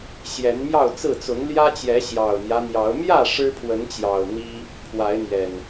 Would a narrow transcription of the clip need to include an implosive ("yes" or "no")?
no